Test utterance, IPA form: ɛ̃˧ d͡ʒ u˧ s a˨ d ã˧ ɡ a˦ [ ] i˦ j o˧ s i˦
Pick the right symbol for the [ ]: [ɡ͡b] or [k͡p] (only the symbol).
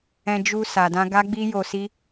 ɡ͡b